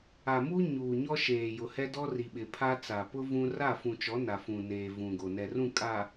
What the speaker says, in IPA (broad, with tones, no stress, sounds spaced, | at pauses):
a˨ m u˦ ɲ uː˨ ɲ ɔ˦ ʃ eː˨ j ʊ˨ h ɛ˦ d ɔ˦ r i˨ ɓ ɪ˨ pʰ a˦ t͡s a˨ p ʊ˦ v ũ˦ r a˦˨ f ũ˨ t͡ʃ ɔ˨˦ n a˨ f ũ˨ n eː˨ v ũ˨ ɡ o˨ n ɛ˨ r ũ˦˨ kʼ a˨